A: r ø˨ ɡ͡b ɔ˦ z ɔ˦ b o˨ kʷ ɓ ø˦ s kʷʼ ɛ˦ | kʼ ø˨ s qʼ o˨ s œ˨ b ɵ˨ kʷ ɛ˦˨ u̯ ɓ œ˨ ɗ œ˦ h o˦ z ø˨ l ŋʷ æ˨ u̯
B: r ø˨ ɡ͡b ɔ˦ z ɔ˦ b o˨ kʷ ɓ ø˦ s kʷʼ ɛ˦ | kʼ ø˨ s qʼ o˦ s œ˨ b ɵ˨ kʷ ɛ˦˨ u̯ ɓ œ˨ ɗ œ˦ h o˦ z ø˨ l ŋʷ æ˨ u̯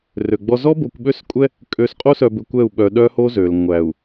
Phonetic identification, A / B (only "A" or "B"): B